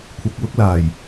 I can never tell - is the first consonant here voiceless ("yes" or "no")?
yes